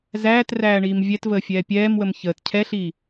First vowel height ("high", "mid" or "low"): low